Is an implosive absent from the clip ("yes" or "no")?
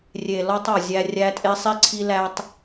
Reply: yes